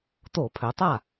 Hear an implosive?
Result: no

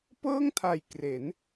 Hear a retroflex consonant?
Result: no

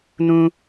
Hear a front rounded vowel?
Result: no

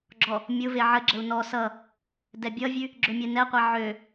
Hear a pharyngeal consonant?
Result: yes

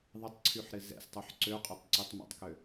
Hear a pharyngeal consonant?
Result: yes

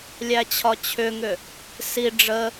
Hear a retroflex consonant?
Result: yes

